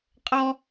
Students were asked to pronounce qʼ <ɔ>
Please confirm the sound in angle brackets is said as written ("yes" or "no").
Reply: yes